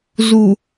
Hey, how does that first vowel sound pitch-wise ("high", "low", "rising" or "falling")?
low